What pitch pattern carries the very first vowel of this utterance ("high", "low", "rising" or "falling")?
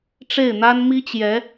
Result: falling